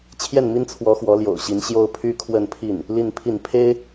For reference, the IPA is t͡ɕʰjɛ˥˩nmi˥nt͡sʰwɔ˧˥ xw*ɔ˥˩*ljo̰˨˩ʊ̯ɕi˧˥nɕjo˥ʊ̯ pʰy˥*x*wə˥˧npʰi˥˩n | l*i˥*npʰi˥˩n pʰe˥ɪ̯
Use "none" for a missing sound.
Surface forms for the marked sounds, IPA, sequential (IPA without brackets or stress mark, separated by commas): ɔ˧˥, kʰ, i˥˧